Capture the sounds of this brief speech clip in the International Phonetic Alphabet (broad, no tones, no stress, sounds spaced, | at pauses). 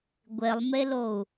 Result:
ɡʷ e lˠ m e l o u̯